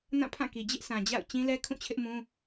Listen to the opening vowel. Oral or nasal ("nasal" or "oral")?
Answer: nasal